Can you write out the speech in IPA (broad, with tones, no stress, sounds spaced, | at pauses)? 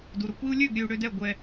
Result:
d u˨ ɾ ʊ˨ kʷ i˧ u̯ lʲ ø˦˨ ɡ ɾʲ ø˧ u̯ ɽ ø˧ d ɛ˦˨ ɡʷ ɛ˧